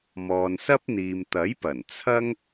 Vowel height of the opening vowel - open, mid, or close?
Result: mid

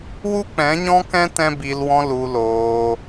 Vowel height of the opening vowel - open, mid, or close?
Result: close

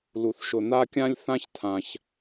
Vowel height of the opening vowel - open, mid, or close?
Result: close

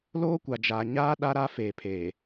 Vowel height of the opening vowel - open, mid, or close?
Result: mid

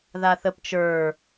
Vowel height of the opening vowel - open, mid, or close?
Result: open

